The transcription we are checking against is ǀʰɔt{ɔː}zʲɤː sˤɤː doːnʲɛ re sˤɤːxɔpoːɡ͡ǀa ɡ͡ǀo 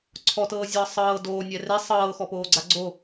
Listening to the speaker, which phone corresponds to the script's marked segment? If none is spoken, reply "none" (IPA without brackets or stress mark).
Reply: ɤː